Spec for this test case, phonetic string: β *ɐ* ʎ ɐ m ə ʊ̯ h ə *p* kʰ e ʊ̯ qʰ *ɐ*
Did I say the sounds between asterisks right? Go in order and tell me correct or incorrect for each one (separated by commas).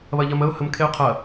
correct, incorrect, correct